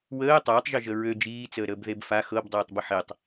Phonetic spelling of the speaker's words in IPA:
w əː tˤ əː tˤ ʒ ø ʒ ə ɹ ø d͡ʒ iː t͡s əː ɾ əː b ð e b f a x ɤ b dˤ eː tˤ b ə ħ e tˤ

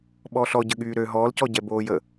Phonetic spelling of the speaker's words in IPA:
ɓ ɔ ɬ ɔ ɟ ə ɠ yː ɾ ø ɦ ɔː l c ɔ ɟ ɛ b oː j ə

